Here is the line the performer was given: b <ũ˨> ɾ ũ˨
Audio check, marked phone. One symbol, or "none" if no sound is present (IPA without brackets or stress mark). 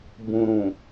ũ˨